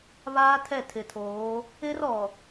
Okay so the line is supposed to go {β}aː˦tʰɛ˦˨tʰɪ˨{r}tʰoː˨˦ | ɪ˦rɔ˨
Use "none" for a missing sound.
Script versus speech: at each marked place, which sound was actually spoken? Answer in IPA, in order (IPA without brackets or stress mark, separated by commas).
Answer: β, none